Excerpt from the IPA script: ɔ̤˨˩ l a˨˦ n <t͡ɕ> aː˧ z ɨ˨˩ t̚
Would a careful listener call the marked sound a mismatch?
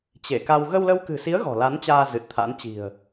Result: no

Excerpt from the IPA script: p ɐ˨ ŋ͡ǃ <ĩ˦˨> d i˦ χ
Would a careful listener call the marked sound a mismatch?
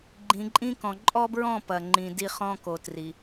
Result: yes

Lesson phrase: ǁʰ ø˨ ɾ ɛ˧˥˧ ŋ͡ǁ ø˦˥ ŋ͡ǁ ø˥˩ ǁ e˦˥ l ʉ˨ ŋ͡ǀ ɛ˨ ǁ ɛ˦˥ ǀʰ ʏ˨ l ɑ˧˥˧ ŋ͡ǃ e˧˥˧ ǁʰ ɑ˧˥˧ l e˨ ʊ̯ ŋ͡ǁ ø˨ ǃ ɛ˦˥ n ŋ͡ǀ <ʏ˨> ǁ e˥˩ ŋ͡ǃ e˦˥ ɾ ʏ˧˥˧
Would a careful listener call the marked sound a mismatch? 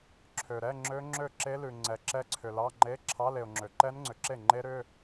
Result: no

